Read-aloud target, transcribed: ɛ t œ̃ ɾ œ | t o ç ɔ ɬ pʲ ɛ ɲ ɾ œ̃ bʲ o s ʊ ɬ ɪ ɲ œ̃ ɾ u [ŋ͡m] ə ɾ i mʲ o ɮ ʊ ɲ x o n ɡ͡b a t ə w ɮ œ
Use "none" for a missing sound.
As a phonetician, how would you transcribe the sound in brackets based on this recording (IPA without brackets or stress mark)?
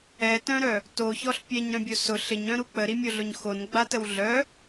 k͡p